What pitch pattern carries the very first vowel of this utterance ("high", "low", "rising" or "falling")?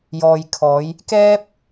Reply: low